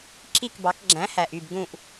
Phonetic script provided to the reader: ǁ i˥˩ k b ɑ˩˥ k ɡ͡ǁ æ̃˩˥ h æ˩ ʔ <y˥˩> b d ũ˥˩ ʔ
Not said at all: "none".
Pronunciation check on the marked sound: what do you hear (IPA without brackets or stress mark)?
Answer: y˥˩